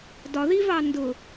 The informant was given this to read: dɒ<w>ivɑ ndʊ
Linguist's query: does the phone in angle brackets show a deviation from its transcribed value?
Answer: yes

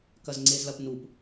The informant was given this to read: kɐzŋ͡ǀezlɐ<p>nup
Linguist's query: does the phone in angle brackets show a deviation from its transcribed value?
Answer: no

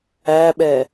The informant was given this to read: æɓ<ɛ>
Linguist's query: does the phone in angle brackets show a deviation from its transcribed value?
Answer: no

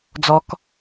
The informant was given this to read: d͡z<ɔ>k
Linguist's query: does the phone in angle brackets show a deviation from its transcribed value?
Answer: no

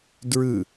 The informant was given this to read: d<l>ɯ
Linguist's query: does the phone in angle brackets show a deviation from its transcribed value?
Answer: yes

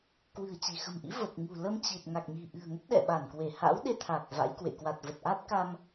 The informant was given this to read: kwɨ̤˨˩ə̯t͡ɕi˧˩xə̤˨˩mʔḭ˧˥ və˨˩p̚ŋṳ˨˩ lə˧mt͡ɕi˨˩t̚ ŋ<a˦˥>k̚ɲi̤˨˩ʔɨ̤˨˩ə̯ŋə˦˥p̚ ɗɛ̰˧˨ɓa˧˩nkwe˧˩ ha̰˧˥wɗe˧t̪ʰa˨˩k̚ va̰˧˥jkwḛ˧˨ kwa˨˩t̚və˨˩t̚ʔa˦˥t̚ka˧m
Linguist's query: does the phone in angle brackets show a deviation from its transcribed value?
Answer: yes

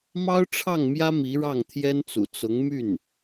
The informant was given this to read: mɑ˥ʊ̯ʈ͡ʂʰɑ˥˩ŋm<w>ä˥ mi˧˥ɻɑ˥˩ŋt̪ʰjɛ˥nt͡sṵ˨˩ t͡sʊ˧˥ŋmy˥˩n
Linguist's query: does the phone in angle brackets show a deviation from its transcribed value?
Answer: yes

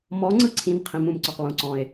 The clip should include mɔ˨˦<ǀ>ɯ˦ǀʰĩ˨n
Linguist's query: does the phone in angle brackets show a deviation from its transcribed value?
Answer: yes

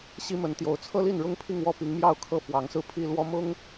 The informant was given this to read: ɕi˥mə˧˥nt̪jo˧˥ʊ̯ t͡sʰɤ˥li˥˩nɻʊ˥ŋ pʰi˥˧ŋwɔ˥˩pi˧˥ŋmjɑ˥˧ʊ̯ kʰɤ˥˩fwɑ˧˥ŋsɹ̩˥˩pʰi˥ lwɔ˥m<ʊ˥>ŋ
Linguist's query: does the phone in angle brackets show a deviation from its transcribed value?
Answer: no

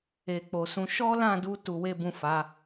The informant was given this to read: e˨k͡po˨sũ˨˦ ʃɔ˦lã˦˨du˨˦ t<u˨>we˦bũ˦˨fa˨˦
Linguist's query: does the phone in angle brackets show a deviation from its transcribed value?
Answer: yes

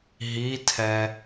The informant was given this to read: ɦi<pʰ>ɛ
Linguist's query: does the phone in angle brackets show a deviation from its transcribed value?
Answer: yes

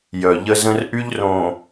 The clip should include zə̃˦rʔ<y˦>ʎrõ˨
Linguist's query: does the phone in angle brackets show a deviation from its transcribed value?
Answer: no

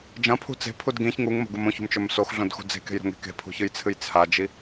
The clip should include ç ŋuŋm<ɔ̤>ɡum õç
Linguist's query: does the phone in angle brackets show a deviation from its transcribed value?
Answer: yes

